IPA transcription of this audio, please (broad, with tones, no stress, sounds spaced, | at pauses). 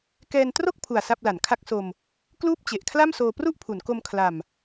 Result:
k ɛː˧ n t r o˥˩ k̚ pʰ u˨˩ a̯ s a˥˩ p̚ l a˩˦ n kʰ a˦˥ k̚ s o˧ m | k l uː˥˩ p̚ t͡ɕ e˨˩ ʔ kʰ l a˥˩ m s oː˧ p r u˥˩ ʔ pʰ u˩˦ n k o˧ m kʰ l a˨˩ m